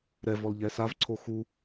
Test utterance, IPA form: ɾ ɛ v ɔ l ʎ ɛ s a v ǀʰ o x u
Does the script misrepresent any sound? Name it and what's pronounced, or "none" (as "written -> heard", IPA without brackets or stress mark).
none